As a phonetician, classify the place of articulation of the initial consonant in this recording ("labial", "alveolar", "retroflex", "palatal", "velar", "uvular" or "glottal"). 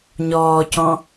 palatal